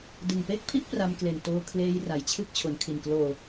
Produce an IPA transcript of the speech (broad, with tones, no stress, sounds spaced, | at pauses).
d ɯ˨˩ ŋ p e˥˩ k̚ pʰ i˥˩ ʔ p r a˧ m k l e˨˩ n t oː˧ kʰ l eː˧ j r a˩˦ j t͡ɕʰ ɯ˥˩ k̚ t͡ɕʰ o˩˦ n kʰ i˨˩ n k l oː˨˩